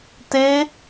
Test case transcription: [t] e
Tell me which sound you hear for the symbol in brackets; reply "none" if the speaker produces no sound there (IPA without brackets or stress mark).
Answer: t